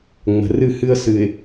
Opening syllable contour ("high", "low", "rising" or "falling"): low